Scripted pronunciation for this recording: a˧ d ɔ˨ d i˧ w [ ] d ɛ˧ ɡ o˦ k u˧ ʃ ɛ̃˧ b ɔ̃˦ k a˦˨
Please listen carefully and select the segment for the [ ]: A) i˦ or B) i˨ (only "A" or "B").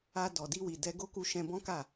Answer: B